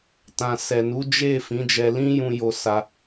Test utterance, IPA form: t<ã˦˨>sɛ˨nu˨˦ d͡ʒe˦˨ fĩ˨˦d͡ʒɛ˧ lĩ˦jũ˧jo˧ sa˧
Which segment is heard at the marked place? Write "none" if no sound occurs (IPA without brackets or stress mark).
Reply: ã˨